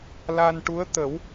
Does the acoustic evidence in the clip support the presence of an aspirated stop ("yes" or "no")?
no